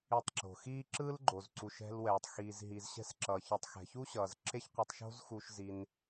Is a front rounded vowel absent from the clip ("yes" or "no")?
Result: yes